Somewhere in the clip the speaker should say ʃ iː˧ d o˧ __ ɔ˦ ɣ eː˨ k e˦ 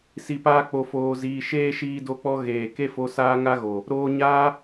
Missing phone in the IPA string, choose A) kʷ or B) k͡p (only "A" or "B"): B